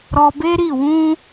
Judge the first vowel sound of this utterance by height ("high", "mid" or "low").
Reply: mid